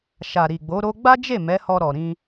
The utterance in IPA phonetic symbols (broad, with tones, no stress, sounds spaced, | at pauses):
ʃ a˨ ɾ i˨ ɡ͡b o˨˦ ɾ o˧ ɡ͡b a˦ d͡ʒ e˦˨ m ɛ˨˦ h ɔ˧ ɾ ɔ˨ ɾ ĩ˧